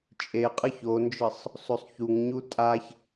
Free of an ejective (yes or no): no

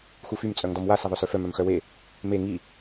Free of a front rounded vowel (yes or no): no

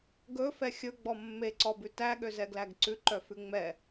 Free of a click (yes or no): no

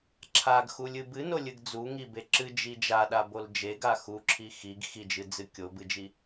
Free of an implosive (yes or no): no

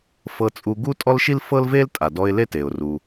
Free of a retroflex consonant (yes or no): yes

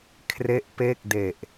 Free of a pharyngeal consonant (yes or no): yes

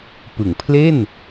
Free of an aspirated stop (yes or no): no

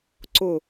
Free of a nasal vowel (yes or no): yes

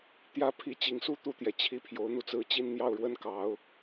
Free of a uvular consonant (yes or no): yes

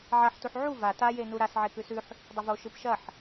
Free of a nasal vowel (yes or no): yes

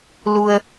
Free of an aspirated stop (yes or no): yes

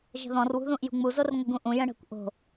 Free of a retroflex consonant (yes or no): no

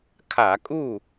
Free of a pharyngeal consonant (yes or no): yes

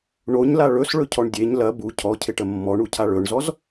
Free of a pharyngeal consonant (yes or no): yes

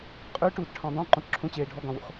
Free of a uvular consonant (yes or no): no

